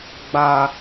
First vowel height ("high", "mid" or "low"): low